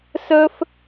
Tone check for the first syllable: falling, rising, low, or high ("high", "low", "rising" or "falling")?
high